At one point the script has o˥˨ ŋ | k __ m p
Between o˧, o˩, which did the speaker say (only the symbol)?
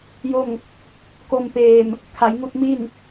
o˧